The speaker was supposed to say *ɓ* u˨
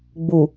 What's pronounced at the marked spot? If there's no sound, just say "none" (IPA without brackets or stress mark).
ɡ͡b